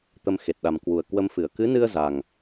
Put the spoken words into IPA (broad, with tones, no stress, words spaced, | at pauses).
t̪ə˧mxe˨˩t̚ɗa˨˩m kwu˨˩ə̯kwə˧mfɨ˧˩ə̯ kɨ˨˦nɨ˧ə̯ za˨˩ŋ